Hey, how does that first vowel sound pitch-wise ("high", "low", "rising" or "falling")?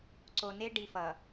low